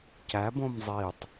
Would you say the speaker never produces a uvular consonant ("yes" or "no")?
yes